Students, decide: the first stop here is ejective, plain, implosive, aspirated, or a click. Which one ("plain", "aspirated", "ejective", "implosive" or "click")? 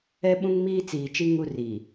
implosive